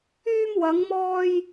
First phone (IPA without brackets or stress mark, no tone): yː